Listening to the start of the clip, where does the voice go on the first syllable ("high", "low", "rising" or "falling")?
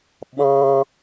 high